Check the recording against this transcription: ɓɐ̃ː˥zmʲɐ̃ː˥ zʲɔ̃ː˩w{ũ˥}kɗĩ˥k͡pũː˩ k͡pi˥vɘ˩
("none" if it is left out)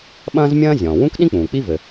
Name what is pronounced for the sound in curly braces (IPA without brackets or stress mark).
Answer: ũ˥